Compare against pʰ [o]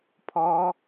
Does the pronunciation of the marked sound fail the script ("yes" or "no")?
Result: yes